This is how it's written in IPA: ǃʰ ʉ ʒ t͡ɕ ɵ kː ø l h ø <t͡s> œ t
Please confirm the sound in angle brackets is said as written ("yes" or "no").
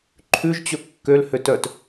no